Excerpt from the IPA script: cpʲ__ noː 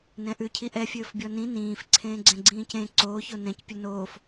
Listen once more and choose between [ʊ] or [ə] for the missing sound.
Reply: ʊ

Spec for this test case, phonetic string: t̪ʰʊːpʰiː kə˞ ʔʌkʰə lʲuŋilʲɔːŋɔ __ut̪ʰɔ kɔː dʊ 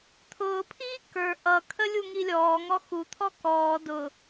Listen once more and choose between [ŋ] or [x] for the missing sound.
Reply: x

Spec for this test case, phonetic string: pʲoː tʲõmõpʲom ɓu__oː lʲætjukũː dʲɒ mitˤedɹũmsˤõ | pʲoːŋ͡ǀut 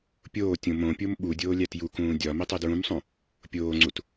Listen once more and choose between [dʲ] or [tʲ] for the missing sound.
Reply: dʲ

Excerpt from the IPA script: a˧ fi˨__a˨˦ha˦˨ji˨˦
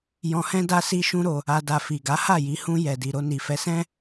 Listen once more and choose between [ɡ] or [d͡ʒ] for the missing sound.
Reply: ɡ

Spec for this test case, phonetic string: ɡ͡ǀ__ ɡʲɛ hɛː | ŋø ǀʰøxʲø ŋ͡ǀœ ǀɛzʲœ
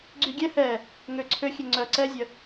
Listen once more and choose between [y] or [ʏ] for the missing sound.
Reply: y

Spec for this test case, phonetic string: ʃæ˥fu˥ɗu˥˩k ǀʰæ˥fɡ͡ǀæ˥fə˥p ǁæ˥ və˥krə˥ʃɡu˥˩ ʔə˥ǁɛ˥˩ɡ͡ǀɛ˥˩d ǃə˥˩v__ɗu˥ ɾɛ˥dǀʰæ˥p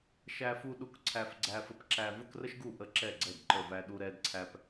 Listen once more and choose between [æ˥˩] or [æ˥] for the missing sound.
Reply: æ˥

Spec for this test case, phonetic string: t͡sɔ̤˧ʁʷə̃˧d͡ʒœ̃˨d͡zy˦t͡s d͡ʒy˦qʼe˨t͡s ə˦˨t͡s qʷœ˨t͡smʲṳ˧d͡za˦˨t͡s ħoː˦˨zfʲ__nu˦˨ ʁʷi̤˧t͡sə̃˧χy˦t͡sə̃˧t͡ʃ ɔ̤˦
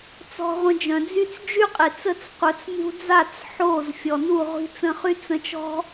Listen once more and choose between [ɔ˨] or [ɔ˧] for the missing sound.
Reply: ɔ˨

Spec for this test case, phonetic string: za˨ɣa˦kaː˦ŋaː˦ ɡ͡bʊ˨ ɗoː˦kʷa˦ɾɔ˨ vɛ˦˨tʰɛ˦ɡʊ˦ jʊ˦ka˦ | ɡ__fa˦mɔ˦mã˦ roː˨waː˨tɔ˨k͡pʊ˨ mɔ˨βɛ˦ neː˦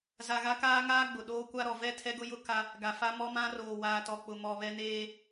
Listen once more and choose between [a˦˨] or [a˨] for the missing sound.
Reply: a˨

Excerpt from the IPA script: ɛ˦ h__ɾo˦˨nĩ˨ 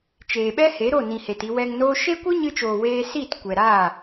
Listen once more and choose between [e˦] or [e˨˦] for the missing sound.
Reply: e˨˦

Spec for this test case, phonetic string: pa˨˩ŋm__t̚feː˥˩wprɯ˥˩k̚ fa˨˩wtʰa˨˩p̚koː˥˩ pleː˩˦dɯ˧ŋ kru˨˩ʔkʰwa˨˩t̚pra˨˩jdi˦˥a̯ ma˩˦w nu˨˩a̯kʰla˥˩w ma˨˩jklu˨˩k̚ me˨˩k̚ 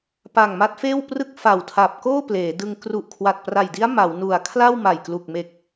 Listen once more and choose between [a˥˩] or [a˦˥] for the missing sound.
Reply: a˦˥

